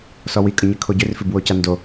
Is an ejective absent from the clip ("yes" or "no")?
no